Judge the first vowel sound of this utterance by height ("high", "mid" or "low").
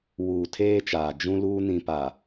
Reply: high